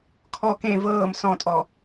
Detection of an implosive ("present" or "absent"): absent